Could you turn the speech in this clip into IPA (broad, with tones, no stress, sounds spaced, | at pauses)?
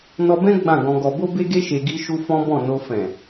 n ɔ˧ b ɛ̃˦ ɡ͡b ã˦˨ ɡ ɔ̃˧ ɡ ɔ˧ b o˦ b e˦ ɡ e˦ ʃ e˧ ɡ i˦ ʃ u˦ f ɔ̃˦ b ɔ̃˦˨ n o˧ f ɛ̃˨